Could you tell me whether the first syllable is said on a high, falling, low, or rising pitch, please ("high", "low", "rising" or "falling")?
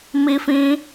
high